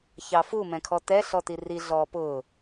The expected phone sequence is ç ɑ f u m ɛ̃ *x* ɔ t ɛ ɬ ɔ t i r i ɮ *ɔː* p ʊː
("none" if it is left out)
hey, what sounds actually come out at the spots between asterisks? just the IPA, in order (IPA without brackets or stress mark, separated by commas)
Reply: kʰ, ɔː